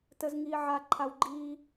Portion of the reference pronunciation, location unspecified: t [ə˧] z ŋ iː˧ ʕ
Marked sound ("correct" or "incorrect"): correct